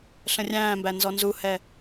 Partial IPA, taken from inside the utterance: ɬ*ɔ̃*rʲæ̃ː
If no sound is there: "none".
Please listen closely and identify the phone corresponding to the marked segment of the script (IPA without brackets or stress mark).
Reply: ə̃